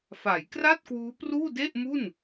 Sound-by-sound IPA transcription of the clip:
f a˩˦ j k r a˥˩ t̚ k w uː˦˥ p r uː˥˩ d e˥˩ ʔ m u˥˩ n

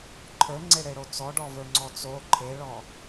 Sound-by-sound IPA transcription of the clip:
ǃʰ ə˞ ŋ͡ǀ e ɽ e ɽ o t͡s ɔ ɖ ɔ v ə˞ ŋ͡ǀ ɔ t͡s o ǃʰ e ɭ ɔ

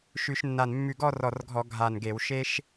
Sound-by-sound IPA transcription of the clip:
ʃ ʉ˧˩˧ ʃ nː a˧˩ n mː ʉ˧˩ ɡ ɔ˥˧ r ɔ˧˩ r ɡʱ ɔ˧˩˧ ɡʱ a˧˩ n ɡ e˧˩˧ w ʃ e˥ ʃ

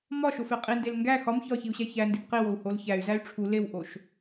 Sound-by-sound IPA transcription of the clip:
m ɒ ʃ o f e qʼ i n d e l ŋ ɡ æ x ɒ m ç ɒ ç i u̯ ɕ æ ç æ n d i b q i w o u̯ h o l ç æ y̯ z æ y̯ ʈ͡ʂʰ u l e w ʔ o ʃ

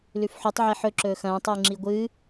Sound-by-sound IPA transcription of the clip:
l ʉ f ħ u tˤ ʕ e ħ ɵ ǁ ɵː x ɐ̃ː tˤ ɨː ŋ͡ǁ i ɡʷ ɨː

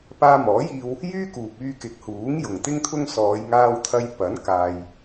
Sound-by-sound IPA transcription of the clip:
p aː˧ m ɔː˨˥ j iː˧ w | j yː˥ k uː˨ p̚ yː˧ k ɪ˨˥ k̚ h uː˨˥ ŋ j ʊ˨˩ ŋ t̪ ɪ˥ ŋ t̪ʰ ʊ˥ ŋ s ɔː˨˧ j ŋ aː˧ w t̪ʰ ɐ˧ j p ɐ˨˥ n k aː˨ j

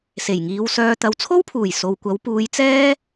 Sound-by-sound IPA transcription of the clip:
s e˨˩ j ŋ iː˨˧ w s œː˧ t̪ ɐ˨ w t͡sʰ o˥ w pʰ uː˨˩ j s o˨ w kʷ ɐ˨˥ w p uː˨˧ j t͡s ɛː˥

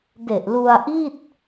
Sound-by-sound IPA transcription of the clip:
d e˨˩ ʔ l u˧ a̯ ʔ i˥˩ t̚

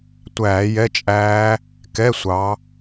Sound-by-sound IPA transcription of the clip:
tʷ æː˧˩˧ j ɛ˧˥˧ t͡ʃʼ æː˦˥ | k ɛ˧˥˧ sʷ ɑ˨˦

